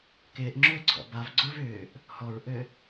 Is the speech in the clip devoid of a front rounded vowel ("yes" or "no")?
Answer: no